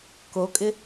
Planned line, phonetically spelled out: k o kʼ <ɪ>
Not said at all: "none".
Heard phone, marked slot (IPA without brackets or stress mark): ɪ